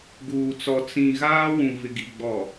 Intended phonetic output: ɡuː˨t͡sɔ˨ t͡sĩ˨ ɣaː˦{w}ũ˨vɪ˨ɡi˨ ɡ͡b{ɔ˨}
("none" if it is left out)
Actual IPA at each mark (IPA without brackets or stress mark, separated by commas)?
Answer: w, ɔ˨